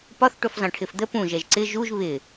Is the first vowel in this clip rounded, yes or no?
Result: yes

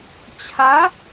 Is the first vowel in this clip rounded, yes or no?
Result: no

